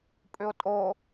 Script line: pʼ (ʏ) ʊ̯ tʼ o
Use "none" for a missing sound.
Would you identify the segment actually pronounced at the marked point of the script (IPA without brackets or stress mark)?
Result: ʏ